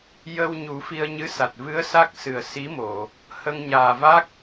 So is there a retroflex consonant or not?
no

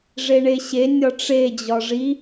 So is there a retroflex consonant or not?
yes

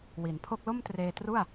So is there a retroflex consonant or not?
no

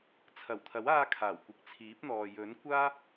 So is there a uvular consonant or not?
no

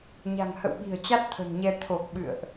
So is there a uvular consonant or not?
no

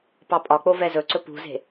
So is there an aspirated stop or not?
no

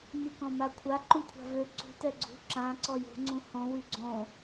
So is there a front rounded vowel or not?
yes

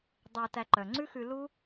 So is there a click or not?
yes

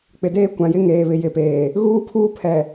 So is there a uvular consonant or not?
no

